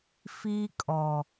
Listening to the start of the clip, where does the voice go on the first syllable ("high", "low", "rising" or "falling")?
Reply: high